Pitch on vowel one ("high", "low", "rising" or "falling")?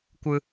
low